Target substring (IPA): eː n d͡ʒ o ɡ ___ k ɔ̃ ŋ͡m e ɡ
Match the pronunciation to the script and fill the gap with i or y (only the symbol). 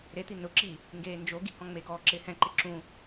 i